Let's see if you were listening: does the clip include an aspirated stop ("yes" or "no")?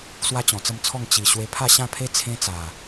yes